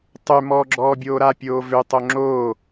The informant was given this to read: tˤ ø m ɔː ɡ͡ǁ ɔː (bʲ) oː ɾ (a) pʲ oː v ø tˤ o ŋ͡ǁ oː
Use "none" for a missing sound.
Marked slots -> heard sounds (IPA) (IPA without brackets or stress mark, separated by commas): bʲ, a